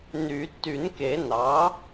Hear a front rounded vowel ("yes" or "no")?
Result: yes